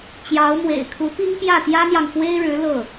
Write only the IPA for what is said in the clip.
t͡ɕ j ɑ˧˥ ʊ̯ m w ḛ˨˩ ɪ̯ kʰ u˧˥ p i˥ ŋ p j ä˥˩ t̪ j ä˥ n̪ j ɑ˨ ŋ f w e˥ ɪ̯ ɻ ɻ̩˧˥ l ɤ˥˩

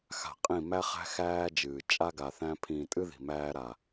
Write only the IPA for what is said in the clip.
x a̤˨ qʼ ĩ˦˨ m æ˦ χ æ̤˦ x æː˦ d͡ʒ ɨː˨ t͡ʃʼ a˦ ɡ a˨ θ æ̃˦ pʰ ĩː˨ tʼ ɨ˦ ð i̤˨ m æː˦ ɾ a˨

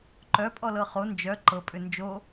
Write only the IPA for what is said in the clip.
ǃ œ pʼ ɔ l ɤ χ o n d͡ʒ œ ǃ ɤ pʼ ʏ n d͡ʒ o

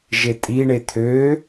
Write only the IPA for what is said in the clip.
ʒ e tʼ i ɳ e t̪ʰ ø

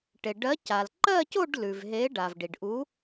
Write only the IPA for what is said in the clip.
ʈ e˩ ɖ ɜ˨˥ c a˩ l ǃ ɜ˥˧ c o˥˧ ɖ l ʉ˩ v ɦ e˨˥ ɖ a˩ v ɖ i˩ ɖ ʔ u˨˥

